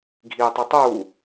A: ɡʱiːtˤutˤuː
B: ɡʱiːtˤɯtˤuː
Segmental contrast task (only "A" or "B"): A